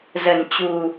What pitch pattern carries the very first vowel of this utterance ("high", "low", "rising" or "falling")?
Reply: low